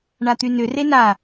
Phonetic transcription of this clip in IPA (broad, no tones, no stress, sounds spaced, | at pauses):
ɳ a t̪ y n ʏ r e n a